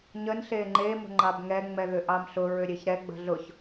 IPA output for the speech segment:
ɲ ə n ɬ e ŋ͡ǃ e m ə̤ ŋ͡ǃ ɑ b ŋ ɛ ŋ͡m ɛ ð ʏ ʔ ɑ m ɬ ʊ ɹ ʏ ɾʲ e ç ɾ ɛ ɡ͡b ə̤ ɮ ʊ ç

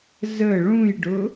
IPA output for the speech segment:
z ə ɭ ũ j ɖ ʊ

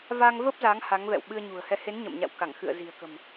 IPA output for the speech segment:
v aː˧ ŋ v əː˦˥ p̚ z aː˨˦ ŋ h a˨˦ ŋ v ɛ̰˧˨ w ɓ ɨ˧ ə̯ ɲ ṳ˨˩ ə̯ h ɛ˧ h e˨˦ n ɲ ə̰˧˨ m ɲ a̰˧˨ w k a˧˩ ŋ x ɨ̰˧˨ ə̯ z i̤˨˩ ə̯ k ə̤˨˩ m

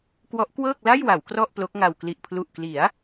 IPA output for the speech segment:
k w ɔ˦˥ ʔ k w ɤː˥˩ k̚ l a˥˩ j w a˩˦ w k r ɔ˥˩ ʔ p l o˦˥ k̚ ŋ a˧ w k l i˨˩ ʔ pʰ l u˨˩ ʔ k l i˩˦ a̯

